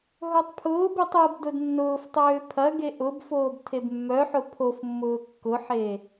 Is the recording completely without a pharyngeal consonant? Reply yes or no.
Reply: no